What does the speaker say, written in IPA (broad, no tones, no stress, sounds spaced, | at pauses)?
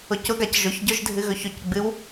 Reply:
ʊ c ʊ ɡ a c ʒ ʊ ç ɟ ʊ ʒ dʱ ɨ ɣ ɵ ç ʊ c ɡ͡b ɨ w